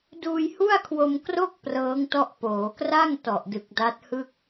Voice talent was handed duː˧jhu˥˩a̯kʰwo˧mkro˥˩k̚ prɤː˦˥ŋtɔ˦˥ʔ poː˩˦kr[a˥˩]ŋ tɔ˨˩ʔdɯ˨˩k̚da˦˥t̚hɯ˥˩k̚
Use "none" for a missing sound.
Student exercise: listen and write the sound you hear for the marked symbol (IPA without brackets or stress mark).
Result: a˥˩